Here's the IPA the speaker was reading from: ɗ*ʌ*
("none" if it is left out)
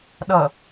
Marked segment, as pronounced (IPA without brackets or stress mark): ʌ